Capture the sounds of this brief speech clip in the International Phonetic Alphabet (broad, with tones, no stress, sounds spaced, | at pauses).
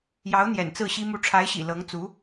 j ɑ˧˥ ʊ̯ n̪ j ɛ̰˨˩ n t͡s ɹ̩˥˩ ɕ i˥ m u˧˥ ʈ͡ʂʰ a˧˥ ɪ̯ ɕ ḭ˨˩ l ɤ˧˥ ŋ t͡s u˧˥